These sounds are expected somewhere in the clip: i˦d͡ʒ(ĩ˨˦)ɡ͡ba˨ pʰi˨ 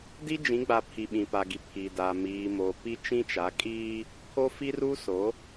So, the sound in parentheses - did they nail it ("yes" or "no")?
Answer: yes